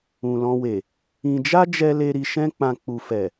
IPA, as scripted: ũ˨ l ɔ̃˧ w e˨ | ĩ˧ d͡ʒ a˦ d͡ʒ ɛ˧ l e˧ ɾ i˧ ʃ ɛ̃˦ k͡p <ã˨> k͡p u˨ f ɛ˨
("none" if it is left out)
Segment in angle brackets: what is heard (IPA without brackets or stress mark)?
ã˧